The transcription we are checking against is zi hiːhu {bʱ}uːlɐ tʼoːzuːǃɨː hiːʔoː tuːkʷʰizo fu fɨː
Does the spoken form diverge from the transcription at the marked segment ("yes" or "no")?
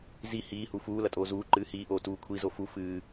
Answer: yes